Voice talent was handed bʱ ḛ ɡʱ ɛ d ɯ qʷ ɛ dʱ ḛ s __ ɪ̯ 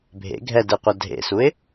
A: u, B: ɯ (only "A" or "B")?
A